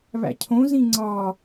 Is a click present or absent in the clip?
present